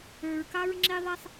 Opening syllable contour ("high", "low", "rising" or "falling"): low